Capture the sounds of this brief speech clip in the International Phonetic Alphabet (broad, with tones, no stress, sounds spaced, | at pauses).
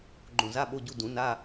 ɡ͡ǃ õ˧˩ z a˧˥˧ ɓ o˧˥˧ ɟ u˧˥˧ d ũ˨˩˦ n a˧˥˧